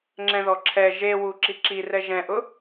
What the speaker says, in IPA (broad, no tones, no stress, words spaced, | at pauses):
ŋ͡ǁɛ̃ðɔǁʰɛ ʒewu ǁiǁirɛ ʒɛ̃ʔʊ